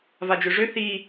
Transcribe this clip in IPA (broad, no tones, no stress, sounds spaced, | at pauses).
v a d͡ʒ ø ʐ ø θ i